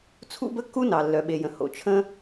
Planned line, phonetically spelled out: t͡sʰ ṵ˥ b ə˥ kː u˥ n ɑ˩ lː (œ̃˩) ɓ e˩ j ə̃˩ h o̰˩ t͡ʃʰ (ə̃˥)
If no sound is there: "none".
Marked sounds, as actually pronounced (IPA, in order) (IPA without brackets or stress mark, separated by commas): œ˩, ə̃˥